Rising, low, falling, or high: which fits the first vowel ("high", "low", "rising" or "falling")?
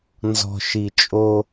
low